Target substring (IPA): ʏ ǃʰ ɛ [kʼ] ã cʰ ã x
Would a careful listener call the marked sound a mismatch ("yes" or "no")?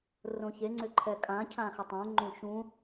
no